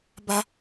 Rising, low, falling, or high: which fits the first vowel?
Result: high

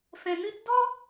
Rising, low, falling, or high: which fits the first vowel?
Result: low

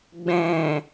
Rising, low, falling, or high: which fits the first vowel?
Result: low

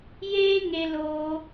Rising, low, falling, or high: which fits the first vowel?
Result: high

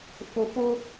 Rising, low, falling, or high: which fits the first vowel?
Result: low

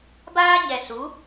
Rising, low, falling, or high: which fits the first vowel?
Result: high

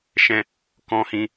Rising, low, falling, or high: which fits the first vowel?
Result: high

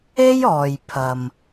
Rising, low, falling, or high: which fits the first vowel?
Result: high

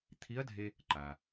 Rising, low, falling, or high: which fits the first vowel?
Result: rising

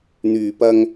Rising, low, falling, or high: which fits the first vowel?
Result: low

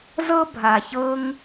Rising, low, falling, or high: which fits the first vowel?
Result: high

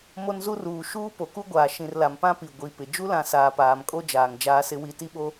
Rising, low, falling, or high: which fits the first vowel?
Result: high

